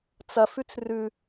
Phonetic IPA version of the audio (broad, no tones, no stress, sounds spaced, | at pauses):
t͡s ɐ f ʉ t͡s r ʉ